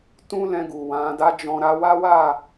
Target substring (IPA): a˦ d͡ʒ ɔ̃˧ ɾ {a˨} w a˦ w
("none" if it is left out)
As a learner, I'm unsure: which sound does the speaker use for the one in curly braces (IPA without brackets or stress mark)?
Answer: a˧